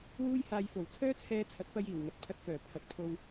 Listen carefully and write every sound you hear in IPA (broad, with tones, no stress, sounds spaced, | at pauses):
w uː˥ j h aː˧ j f o˨˩ w t͡sʰ œː˥ t͡sʰ ɛː˧ t͡sʰ ɐ˨˥ t̚ p ɐ˧ j iː˨˩ w ŋ ɐ˨ t̚ pʰ ɐ˧ t̚ f œː˨˩ pʰ ɐ˨ t̚ pʰ o˧ w